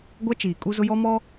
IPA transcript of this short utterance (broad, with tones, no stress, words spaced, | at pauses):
ɡʷa˦t͡ʃiː˨ kʼu˦zʊ˦ jɔ˦mɔ˦